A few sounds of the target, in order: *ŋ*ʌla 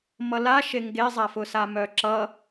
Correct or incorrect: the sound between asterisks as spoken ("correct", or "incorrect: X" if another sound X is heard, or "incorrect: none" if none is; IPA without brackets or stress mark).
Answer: incorrect: m